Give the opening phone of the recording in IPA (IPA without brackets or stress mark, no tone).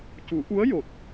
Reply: c